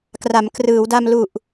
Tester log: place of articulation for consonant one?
velar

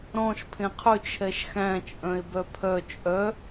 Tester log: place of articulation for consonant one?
alveolar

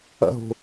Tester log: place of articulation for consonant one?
glottal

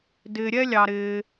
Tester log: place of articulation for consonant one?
alveolar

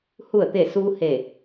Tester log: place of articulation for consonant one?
glottal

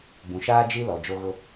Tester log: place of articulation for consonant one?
labial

